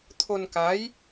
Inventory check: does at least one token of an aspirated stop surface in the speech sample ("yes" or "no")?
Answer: yes